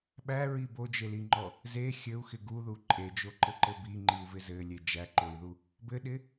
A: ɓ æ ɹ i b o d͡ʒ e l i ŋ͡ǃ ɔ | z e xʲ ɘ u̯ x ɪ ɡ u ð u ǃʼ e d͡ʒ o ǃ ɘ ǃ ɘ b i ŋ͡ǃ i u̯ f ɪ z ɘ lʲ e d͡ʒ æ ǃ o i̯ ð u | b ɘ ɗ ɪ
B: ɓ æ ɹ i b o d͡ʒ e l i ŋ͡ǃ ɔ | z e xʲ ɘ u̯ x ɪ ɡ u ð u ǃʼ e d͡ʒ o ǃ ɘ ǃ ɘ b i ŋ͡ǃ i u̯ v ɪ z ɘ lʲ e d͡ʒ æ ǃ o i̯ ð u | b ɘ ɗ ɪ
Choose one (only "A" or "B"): B